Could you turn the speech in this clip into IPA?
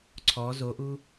ǀʰ ɔ z o ʔ u

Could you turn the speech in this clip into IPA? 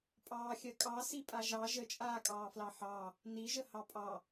pʼ ɑː xʲ ɜ kʼ ɑ s i pʼ a ʒ ɑ ʒ ə t͡ʃʼ aː kʼ ɑː f l ɑ ħ ɑ | n i ʒ ə h ɑ pʼ ɑ

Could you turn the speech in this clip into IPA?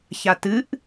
ç a t ɨ ʔ

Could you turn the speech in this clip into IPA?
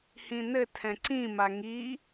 h ĩ n ɘ tʰ ɛ̃ ǀ ĩ m a ŋ i

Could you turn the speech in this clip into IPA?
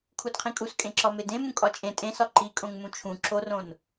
kʰ u d qʰ ĩ kʼ u s kʼ ẽ ǁ ɒ m e d ẽ m ũ kʼ ɒ t͡ʃʼ ẽ tʼ ẽ s ɒ ǃ i kʼ õ ŋ m ũ t͡ʃʰ ũ ǁ o r õ n

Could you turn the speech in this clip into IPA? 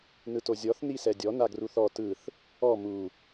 n ɯ t o zʲ ɔ θ n i s ɛ dʲ ɔ n a ɡ r u θ ɔ t ɯ θ | ɔ m u

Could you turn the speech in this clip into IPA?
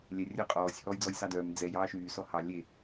lʲ ɛ rʲ œ qʼ ɔː sʲ h ɔː j d͡z ɔ j s ɑ d œː m d͡z ɛ j ɑː ʃ yː s ɔ h ɑ lʲ e

